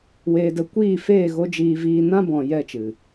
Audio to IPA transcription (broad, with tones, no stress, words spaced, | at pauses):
weː˧də˧ kʷiː˦˨feː˦˨ ɣo˦d͡ʒiː˧viː˧ nã˦bɔ̃˨ jɛ˦˨t͡ʃɨ˨